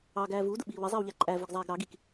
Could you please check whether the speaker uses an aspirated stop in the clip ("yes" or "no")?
no